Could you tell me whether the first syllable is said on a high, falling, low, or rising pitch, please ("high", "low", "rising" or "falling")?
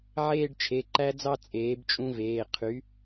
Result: falling